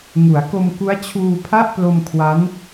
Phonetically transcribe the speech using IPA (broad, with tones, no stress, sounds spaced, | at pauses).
ŋ u˩˦ a̯ k o˧ m k u˦˥ a̯ t͡ɕʰ uː˧ pʰ a˥˩ ʔ p l o˧ m kʰ w a˦˥ n